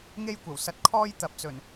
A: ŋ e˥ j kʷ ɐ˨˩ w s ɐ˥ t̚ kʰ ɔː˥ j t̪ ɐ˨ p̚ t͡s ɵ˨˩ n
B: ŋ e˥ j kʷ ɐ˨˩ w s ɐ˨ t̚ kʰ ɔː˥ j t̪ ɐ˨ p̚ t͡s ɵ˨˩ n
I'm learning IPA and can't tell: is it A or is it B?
B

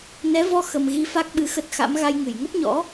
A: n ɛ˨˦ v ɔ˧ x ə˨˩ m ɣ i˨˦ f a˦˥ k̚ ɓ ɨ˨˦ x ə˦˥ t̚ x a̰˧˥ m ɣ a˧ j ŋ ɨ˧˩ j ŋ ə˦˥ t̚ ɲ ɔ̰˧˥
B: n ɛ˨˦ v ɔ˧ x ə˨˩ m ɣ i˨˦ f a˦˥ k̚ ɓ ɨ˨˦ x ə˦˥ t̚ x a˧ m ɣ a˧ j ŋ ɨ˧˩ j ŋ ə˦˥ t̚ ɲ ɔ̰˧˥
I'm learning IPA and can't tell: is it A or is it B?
A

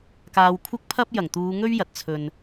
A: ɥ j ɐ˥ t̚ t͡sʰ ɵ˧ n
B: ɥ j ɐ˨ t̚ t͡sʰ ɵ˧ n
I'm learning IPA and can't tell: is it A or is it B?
B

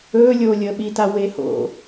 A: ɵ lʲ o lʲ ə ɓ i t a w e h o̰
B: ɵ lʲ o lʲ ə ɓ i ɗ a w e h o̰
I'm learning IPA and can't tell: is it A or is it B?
A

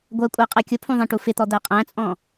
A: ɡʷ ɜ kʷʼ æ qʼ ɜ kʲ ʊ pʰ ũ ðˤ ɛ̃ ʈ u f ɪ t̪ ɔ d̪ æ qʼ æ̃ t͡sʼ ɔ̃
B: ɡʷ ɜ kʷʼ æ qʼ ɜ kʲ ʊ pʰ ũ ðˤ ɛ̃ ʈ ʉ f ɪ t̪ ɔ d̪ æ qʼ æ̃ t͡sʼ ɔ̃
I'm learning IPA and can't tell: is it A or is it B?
A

